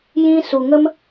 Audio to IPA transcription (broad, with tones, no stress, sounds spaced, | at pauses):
j ĩ˧ s u˨ ŋ ə˦ m